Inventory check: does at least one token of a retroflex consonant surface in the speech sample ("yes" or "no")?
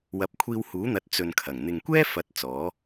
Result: no